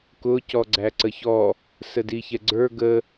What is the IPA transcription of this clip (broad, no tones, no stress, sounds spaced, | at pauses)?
k ʊ c ɔ ɡ͡ǀ æ ǀ ə ç ɔ | s ə d i ç ɛ ɡ͡ǀ ə˞ ɡ ə